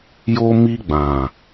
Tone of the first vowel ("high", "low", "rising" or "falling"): high